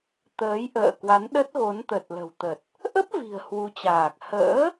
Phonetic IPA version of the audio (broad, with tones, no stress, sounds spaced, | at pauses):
t̪ əː˨˦ j ʔ ə̰ː˧˨ k w a˨˦ n ɗ ə˦˥ t̚ ɣ o˨˦ n t̪ ə˨˩ t̚ l ə̤˨˩ w t̪ ə˨˩ t̚ | ʔ ə˦˥ p̚ v i̤˨˩ ə̯ h w u˨˦ t͡ɕ aː˨˩ k̚ h ə̰ː˧˥